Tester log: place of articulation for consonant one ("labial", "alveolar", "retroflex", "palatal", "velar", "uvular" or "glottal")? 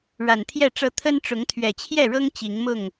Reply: retroflex